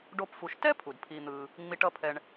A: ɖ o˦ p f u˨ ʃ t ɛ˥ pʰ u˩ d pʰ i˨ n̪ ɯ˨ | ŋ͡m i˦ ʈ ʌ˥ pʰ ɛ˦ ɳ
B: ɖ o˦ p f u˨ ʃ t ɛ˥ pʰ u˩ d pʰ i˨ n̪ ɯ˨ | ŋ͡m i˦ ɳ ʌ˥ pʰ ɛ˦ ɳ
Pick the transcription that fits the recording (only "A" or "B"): A